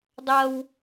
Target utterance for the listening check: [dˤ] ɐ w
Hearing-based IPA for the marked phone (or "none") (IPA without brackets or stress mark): dˤ